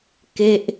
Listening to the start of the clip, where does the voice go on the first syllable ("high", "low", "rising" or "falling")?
falling